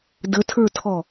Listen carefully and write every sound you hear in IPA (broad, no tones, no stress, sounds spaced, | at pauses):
d ə tʰ ə˞ tʰ ɔ